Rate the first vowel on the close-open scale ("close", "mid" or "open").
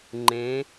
mid